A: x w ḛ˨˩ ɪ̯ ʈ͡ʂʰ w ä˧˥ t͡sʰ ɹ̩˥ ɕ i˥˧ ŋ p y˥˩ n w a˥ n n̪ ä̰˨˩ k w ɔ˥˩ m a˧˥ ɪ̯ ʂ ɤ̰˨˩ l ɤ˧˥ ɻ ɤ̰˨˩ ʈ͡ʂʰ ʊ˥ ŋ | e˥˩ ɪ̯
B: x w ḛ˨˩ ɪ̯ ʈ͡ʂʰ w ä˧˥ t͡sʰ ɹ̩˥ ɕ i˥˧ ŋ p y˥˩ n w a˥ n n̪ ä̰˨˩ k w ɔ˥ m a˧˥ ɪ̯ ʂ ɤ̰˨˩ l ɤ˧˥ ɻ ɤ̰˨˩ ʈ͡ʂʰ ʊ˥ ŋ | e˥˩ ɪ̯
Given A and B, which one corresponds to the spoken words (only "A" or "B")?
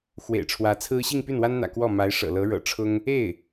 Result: A